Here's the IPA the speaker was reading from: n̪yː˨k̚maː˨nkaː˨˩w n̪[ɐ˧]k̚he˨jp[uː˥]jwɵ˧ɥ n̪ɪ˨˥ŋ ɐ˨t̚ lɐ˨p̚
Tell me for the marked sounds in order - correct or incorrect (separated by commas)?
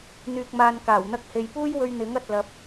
correct, correct